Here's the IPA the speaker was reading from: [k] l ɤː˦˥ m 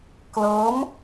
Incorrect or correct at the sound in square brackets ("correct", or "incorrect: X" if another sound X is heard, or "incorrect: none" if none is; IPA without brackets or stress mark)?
correct